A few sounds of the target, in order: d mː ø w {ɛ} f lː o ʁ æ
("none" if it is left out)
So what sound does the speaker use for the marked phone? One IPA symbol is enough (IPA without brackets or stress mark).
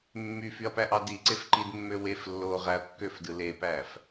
e